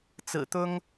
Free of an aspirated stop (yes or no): yes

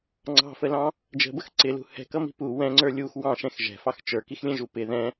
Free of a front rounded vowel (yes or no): yes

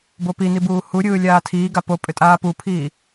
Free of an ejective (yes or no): no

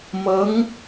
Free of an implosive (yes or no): yes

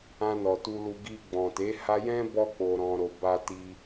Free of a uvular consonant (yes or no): yes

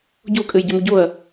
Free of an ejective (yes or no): no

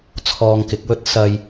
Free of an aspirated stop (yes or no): no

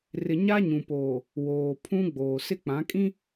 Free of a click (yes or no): yes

